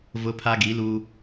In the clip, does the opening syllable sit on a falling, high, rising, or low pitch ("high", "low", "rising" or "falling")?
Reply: high